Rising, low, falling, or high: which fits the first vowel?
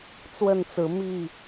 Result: falling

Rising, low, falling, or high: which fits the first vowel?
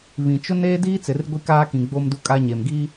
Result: low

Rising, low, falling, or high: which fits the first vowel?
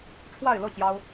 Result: falling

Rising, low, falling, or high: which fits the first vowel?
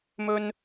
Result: high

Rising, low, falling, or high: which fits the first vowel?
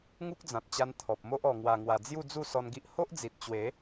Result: high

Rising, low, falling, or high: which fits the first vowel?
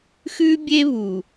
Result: high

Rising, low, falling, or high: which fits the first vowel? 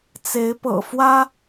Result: rising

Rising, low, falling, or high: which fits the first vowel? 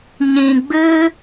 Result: low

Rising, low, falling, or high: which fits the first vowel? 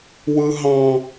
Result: high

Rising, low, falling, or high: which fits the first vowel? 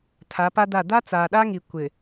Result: rising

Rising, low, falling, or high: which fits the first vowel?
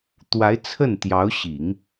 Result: rising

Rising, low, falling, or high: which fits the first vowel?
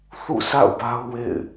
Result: falling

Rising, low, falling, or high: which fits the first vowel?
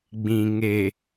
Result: low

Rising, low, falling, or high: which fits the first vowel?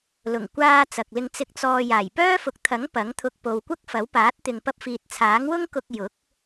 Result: low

